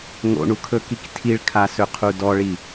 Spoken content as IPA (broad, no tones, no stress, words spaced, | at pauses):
ŋo̰ɳukʰɵkik tʰiɭkʰasɵqʰu dɔɭi